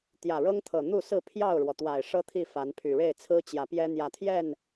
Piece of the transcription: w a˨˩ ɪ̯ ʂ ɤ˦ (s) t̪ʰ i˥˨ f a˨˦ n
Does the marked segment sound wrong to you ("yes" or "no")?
yes